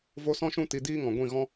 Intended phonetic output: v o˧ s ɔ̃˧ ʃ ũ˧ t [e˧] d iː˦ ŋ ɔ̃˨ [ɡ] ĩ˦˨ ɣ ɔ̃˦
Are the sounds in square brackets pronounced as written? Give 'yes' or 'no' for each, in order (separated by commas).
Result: no, no